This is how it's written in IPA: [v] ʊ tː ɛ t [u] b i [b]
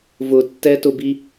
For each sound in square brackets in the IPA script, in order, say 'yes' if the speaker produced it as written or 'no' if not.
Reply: yes, no, no

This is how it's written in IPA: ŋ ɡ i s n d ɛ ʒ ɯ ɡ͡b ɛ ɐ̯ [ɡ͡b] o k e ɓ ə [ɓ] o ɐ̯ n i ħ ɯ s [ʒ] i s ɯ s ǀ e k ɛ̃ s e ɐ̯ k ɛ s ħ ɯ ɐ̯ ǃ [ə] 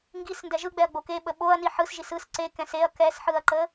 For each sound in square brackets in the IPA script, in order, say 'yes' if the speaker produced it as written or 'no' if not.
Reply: yes, yes, yes, yes

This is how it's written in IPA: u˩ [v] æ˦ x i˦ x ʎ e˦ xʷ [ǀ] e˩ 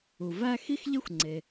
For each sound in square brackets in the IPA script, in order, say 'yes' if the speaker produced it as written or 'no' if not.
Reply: yes, no

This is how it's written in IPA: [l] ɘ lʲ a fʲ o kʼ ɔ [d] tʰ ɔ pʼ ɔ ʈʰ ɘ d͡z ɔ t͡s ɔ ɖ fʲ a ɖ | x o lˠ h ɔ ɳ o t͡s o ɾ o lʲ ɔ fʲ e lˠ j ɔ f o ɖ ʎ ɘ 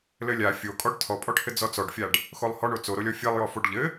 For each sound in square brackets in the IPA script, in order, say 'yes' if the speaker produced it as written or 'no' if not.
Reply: yes, no

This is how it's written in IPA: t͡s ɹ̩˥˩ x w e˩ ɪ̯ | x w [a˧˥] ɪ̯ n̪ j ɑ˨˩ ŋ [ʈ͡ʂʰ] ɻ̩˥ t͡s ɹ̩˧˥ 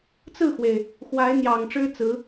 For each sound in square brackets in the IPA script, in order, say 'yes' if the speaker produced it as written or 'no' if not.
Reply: yes, no

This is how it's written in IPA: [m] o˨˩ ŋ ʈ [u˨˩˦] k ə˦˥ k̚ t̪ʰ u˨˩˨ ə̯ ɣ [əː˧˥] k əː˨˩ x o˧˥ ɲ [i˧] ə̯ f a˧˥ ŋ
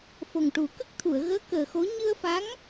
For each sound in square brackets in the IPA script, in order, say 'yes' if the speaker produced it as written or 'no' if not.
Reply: no, yes, yes, no

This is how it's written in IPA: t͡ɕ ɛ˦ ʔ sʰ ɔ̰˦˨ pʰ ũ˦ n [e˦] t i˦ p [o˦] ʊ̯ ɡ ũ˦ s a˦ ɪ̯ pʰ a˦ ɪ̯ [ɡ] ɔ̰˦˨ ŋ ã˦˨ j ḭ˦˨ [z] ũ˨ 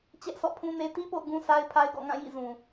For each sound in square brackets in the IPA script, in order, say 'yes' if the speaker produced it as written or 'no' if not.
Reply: yes, no, yes, yes

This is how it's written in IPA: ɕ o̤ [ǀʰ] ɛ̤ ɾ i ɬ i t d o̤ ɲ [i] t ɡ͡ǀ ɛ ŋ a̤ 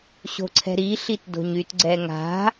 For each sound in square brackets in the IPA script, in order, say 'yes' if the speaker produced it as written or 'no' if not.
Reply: yes, no

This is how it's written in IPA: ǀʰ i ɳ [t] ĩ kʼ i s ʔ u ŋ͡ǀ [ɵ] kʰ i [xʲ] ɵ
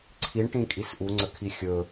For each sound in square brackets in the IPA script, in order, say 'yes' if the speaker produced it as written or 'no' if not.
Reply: no, no, yes

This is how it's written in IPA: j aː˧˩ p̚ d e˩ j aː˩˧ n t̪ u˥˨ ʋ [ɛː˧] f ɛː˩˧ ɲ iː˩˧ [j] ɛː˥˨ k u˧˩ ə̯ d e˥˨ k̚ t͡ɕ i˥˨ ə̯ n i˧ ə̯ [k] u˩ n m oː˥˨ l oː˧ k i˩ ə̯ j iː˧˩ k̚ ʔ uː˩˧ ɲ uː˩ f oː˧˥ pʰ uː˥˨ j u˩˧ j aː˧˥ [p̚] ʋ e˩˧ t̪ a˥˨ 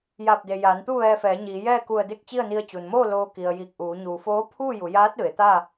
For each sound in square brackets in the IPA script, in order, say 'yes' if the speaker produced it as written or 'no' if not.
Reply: yes, yes, no, no

